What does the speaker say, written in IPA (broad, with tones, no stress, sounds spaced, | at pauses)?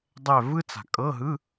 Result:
dˤ ɛ˦˨ v ɯ˥ t͡s a̤˨˩ kʼ ɤ˧˥˧ ɦ ɯ˧˥˧